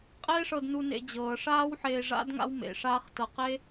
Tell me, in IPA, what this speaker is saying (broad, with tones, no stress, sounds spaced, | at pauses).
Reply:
qʼ eː˥ ʂ ɤ˧ d n u˧ n ḛ˧ d͡ʑ ɤː˩ ʂ aː˥ w ħ eː˧ ʐ a̰˥ d ŋ a̰˥ w m ḛ˩ ʂ aː˥ χ t ɤ˧ q e˥